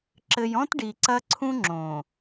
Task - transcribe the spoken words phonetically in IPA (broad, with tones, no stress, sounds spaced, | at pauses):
ǁ ɘ˨ j ɔ̃˦ t ɖ i˨ ǀ ɐ˦ ǀʰ ũ˦ ŋ͡ǁ õ˨